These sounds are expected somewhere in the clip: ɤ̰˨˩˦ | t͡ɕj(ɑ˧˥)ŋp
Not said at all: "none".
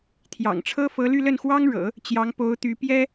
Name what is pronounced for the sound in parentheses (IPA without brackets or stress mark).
ɑ˧˥